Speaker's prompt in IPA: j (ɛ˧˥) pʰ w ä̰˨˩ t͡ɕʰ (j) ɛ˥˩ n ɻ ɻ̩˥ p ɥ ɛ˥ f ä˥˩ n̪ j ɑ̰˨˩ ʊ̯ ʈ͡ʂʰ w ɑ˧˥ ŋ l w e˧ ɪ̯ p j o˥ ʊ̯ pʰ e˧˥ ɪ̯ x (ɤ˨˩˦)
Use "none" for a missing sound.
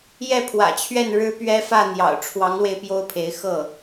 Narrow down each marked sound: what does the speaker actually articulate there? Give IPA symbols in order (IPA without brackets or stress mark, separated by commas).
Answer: ɛ˥˩, ɥ, ɤ˥˩